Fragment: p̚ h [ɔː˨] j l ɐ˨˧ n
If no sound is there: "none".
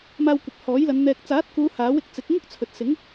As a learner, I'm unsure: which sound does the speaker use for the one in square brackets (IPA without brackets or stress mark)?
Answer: ɔː˨˥